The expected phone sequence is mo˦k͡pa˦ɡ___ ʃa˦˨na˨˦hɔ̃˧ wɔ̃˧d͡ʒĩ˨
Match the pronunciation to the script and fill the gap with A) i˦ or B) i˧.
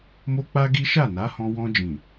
A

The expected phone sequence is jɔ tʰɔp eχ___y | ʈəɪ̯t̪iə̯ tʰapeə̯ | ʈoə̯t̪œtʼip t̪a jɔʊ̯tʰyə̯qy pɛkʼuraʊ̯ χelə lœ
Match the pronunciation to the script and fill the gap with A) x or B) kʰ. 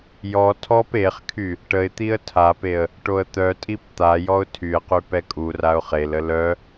B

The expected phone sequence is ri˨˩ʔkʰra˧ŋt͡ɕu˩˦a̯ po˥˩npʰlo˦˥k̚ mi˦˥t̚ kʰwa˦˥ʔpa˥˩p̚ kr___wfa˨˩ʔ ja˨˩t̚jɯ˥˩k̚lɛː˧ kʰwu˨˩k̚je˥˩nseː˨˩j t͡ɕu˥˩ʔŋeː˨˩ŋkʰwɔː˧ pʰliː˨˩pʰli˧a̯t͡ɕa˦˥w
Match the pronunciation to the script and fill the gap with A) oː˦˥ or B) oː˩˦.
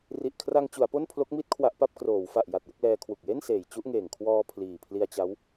B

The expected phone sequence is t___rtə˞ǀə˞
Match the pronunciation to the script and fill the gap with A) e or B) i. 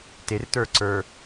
A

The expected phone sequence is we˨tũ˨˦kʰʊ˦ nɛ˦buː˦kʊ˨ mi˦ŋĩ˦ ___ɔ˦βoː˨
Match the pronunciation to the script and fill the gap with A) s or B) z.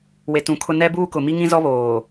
B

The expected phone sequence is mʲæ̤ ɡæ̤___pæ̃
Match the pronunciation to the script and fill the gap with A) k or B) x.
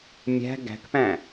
A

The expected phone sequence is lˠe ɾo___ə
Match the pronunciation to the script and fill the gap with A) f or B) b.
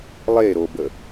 B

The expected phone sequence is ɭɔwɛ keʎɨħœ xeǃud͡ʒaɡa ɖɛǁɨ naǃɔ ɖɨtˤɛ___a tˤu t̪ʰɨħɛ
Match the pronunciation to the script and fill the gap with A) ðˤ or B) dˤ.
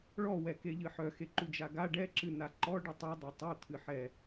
B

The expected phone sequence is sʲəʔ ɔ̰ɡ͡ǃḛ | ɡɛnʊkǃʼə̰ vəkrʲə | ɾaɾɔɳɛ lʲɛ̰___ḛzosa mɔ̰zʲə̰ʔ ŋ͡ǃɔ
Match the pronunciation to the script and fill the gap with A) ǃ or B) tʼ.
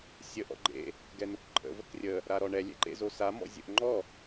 A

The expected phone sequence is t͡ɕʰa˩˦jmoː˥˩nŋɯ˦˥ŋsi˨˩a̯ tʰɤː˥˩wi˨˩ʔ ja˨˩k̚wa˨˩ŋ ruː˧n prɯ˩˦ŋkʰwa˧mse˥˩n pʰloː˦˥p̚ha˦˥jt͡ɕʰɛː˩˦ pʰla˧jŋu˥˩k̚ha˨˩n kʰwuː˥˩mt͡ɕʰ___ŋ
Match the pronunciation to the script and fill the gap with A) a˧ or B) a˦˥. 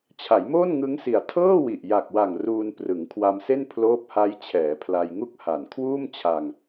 A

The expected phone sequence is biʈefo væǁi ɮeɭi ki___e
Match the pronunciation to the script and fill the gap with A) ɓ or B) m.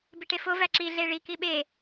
A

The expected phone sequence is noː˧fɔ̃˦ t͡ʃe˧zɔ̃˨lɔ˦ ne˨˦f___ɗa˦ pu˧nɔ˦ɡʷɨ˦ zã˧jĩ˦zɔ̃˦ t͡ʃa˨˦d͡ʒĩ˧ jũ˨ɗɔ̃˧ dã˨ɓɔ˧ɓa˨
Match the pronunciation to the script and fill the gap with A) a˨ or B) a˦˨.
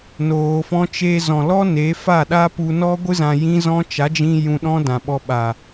B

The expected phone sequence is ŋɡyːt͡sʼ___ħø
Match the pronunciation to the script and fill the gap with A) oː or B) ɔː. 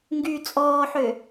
B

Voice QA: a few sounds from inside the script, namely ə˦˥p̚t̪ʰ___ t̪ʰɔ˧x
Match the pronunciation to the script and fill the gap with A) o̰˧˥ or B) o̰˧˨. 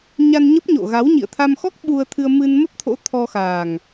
A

